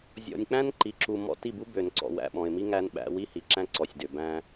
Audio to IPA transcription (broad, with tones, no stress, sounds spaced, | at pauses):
zʲ ɔ̰˨ nʲ k͡p æ̃˦ n ǃ i˨ ǁ u˨ m ɔ̰˦˨ t i˦˨ b u˦ b ø˨ n ǀ ɔ̰˨ w æ̰˨ ɓ ɔ̃˨ ɪ̯ m i˦ ŋ æ˦ n ɓ æ̰˦ w i˦ h i˨ ǁ æ̃˦ ǀ ɔ˨ sʲ d ø˨ b æ̃˦